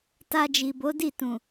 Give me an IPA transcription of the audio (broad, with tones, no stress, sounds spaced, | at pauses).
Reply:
t a˧ d͡ʒ i˨ b o˨˦ d i˦˨ t ũ˨